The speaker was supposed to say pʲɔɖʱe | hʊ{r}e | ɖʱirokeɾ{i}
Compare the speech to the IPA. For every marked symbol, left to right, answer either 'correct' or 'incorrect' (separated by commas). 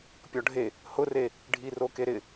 correct, incorrect